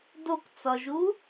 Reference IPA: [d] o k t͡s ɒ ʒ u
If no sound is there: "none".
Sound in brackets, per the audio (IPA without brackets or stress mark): d